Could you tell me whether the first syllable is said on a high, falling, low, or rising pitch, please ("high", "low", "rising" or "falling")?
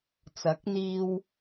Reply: rising